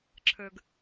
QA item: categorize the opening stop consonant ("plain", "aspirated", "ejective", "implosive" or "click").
click